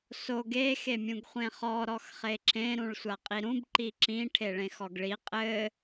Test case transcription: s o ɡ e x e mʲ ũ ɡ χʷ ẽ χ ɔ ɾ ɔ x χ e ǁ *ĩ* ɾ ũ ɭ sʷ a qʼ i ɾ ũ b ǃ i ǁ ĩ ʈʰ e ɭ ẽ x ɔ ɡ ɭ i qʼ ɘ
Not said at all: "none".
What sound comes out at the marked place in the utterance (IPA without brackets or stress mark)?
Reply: ẽ